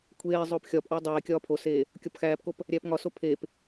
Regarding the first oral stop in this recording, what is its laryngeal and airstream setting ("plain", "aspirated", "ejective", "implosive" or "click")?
aspirated